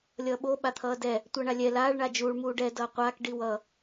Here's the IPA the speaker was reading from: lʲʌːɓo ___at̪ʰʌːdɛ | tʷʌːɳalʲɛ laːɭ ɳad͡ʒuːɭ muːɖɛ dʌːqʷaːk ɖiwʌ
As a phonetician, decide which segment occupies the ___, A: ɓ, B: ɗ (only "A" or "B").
A